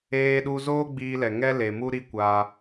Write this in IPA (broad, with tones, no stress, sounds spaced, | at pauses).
eː˧ ɗ u˧ z oː˦ ɡ͡b iː˧ l ɛ˨ ŋ ɛ˦ l e˨ m u˦ ɾ i˦ kʷ aː˧